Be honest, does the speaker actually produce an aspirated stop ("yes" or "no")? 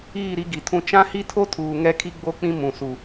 yes